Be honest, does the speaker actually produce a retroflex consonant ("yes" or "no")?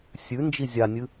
no